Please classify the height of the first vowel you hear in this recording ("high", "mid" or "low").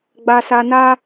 low